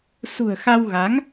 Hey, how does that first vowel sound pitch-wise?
low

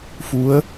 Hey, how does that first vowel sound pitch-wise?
rising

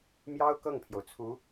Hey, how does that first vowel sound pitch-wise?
high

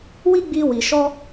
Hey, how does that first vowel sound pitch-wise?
high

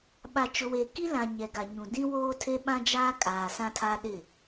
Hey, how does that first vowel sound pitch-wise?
low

